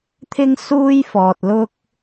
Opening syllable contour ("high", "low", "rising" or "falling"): high